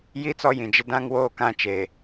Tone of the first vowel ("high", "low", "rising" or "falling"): falling